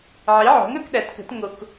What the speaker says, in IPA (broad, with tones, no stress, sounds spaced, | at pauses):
ʕ i˩˥ ʕ o̤˩˥ ŋ œ˦ k ɗ æ˩˥ t k ə̤˩˥ t ŋ o˦ k